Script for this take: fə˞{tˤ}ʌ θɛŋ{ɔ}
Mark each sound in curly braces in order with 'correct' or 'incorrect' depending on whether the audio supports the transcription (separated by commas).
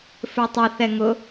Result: correct, incorrect